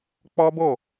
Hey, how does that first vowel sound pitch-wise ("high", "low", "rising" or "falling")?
high